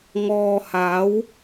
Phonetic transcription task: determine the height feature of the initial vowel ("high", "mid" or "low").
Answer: mid